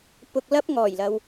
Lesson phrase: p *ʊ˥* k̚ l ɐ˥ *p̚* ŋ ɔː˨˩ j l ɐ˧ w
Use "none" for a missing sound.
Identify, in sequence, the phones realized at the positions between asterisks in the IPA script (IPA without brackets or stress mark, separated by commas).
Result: ʊ˧, p̚